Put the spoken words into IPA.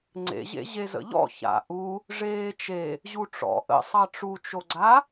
ŋ͡ǀ ḛ ʑ ḛ ʑ e z ə̰ ʎ ɔ̰ ç a̰ ʔ u | ʐ eː t͡ʃ e | ʑ u ʈ͡ʂ ɔ̰ ʔ ə̰ sˤ ɑ ʈ͡ʂ u t͡ʃ o ɡ͡ǀ a

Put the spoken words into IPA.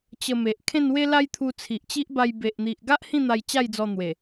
t͡ɕ ə˧ m e˨ ʔ kʰ ẽ˥˧ n w e˦ l a˦ j t̪ʰ u˧ t͡sʰ i˨ ʔ t͡ɕ i˦ ʔ b a˧ j b e˨ ʔ n̪ i˨ ʔ ɡ a˦ ʔ h ĩ˥˧ n̪ a˧ j t͡ɕ a˥˧ j d͡z ɔ˧ n̪ w e˨˩

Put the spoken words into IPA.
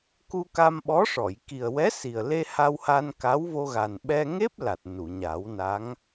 k u˧ k a˧ m ɓ ɔ˧˥ ʂ ɔ˨˩˨ j k i˨˩ ə̯ w ɛ˧˥ s i˨˩ ə̯ l e˧ h a˧ w h a˧ n k a˧˥ w v o˧ ɣ a˨˩ n ɓ ɛ˧ ŋ e˦˥ p̚ l a˨˩ t̚ n u˨˩˨ ɲ a˨˩˦ w n a˧˥ ŋ

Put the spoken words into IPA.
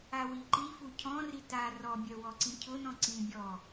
a w i ǃ i f u cʰ ɔ̃ r i t a r ɔ bʲ œ w ɔ ǀ ĩ cʰ ʊ n ɔ̃ ǀ ĩ bʲ ɔ

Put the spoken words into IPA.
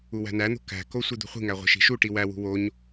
u w æ̤ n æ n̪ o̤ k æ̤ k o sʷ i d̪ ṳ χʷ i̤ ŋ æ ʁʷ e̤ ʃ i̤ ʃ u ʈ i w æ w ṳ w o ɲ

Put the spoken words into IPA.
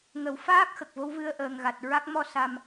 ŋ ə˨˩˦ w f aː˦˥ k̚ x ə˨˩ k̚ v o˧˥ w v ɨ˧ ə̯ ʔ əː˨˩ ŋ ɣ a˨˩ t̚ ɹ a˦˥ k̚ m ɔ˧ s a˨˩ m

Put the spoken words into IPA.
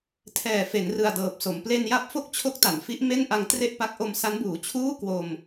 tʰ ɛː˨˩ f e˩˦ n r ɯ˨˩ a̯ d ɤː˨˩ p̚ s o˩˦ m p l e˧ n j a˦˥ p̚ f o˥˩ k̚ t͡ɕʰ o˦˥ k̚ t a˩˦ n f i˦˥ ʔ m e˥˩ n ʔ a˧ ŋ t r e˥˩ ʔ p a˦˥ k̚ ʔ o˧ m s a˦˥ n b uː˩˦ t͡ɕʰ uː˥˩ k w o˧ m

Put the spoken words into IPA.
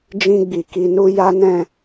d͡ʒ ĩ˧ ɡ͡b i˨ k i˨ n u˧ j a˦ n ɛ̃˦˨

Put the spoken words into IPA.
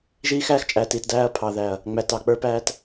ʒ iː˦ x æː˦ x t͡ʃʼ æː˨ t i˨ t d æː˦ ɐ̯ pʰ ɑ˨ ð æ˨ ɐ̯ | ŋ͡m æ˨ t ɑ˨ k͡p ə˞˦ p æː˦ t

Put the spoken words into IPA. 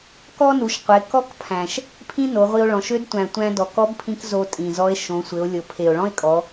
k ɔ˥ n u˩˧ ʃ qʷ e˩˧ k ɔ˥ k pʰ æ̃˩ ʃ | pʰ ĩ˥ n o˩˧ ʁʷ i˧ o̯ ɭ ɔ̃˩˧ ʃ ø˧˥ d tʷ æ̃˩ tʷ æ̃˧ d ɔ˩ k ɔ˧˥ b pʰ ĩ˧ k z o˧ tʼ ĩ˩ z ɔ˧˥ e̯ ʃ õ˩˧ sʷ ɘ˩˧ o̯ lʲ ɤ˩ pʰ e˩ o̯ ɭ ɔ̃˥ e̯ kʼ ɔ˩˧

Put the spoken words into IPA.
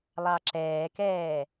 lˠ ɑ ǁ ɛː k ɛː

